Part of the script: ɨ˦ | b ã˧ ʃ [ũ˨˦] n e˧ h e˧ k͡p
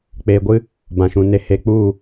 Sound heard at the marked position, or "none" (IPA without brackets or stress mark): ũ˧